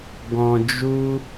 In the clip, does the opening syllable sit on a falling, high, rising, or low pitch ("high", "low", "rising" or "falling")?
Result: low